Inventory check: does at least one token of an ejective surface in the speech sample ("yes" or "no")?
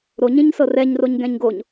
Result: no